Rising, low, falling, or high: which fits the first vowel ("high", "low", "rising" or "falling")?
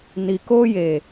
low